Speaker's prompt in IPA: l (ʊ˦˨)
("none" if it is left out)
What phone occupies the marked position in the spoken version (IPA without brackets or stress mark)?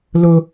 ʊ˦